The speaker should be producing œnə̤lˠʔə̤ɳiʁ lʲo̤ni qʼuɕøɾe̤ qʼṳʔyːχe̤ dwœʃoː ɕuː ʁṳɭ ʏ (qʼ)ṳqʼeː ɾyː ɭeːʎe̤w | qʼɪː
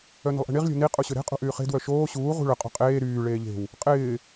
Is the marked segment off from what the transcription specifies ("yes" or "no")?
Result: no